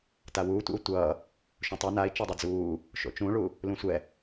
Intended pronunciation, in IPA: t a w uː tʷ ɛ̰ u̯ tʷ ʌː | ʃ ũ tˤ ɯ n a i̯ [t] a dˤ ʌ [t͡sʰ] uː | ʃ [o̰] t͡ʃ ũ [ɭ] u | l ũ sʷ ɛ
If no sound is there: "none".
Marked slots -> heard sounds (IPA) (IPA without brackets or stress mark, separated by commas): t͡ʃ, d͡z, o̰, ɭ